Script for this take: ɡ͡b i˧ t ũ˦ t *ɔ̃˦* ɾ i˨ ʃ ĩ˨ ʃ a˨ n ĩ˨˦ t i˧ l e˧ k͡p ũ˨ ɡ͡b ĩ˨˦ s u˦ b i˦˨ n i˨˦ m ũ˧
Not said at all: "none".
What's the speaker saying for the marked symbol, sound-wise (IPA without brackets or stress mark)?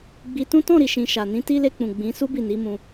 ɔ̃˦˨